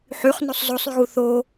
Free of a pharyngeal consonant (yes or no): no